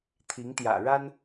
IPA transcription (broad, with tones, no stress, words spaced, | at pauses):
t̪ʰi˧˥ŋt̪jä̰˨˩ɻa˥n